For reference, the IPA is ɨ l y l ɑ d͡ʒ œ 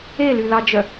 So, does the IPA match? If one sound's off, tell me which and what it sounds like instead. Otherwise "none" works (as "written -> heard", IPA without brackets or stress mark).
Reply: ɨ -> e